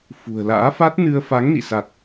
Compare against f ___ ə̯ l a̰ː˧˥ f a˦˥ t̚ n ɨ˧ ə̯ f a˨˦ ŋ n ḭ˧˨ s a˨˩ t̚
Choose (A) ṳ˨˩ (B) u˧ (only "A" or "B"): A